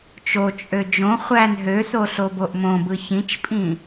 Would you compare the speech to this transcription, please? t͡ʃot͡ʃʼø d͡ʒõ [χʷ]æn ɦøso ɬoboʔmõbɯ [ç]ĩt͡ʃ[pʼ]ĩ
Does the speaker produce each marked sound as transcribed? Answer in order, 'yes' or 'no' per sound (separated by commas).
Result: yes, yes, yes